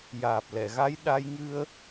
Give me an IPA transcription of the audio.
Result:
j aː˨˩ p̚ l ɛ˨˩˨ ɣ a˧˥ j ɗ a˧ j ŋ ɨ˧ ə̯

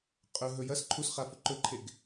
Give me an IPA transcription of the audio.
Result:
qʼ ɵ ɦ ɵ j ɐ s ǃʰ u s χ a f ɵ ǃ ɵ ǃʰ e ɡ

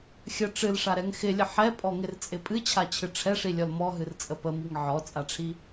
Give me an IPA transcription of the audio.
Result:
xʲ ə ʈ͡ʂ ɨ l ʂ a ɾ ɛ ŋ x ɪ lʲ ə ħ ɛ pʼ ɔ ŋ ɪ r t͡sʼ ɪ pʼ ɨ t͡ɕʰ a t͡ɕʰ ɨ ʈ͡ʂʰ ɛ ʂ i lʲ ɔ l m ɔ ɦ ɨ r t͡sʼ ə p ə m i ŋ ʕ ɔ t͡sʼ a ʈ͡ʂʰ i

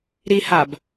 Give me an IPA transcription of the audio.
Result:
ɾ i h a b

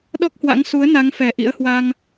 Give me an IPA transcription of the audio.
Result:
ɗ ɔ˦˥ k̚ h w a̰˧˥ ŋ s u˨˦ ə̯ n a˨˦ ŋ f ɛ˨˩ ʔ ḭ˧˥ ə̯ h w a˧ ŋ

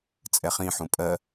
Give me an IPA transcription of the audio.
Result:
t͡sʼ ɛ χ ĩ ħ ũ pʼ ɜ

